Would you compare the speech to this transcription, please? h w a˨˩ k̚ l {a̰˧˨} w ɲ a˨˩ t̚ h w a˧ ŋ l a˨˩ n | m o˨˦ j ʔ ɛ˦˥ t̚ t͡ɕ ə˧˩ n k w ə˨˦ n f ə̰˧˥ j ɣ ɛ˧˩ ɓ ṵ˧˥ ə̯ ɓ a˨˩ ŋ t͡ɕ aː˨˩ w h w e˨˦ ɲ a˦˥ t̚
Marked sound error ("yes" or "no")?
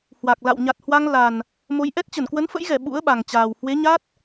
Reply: no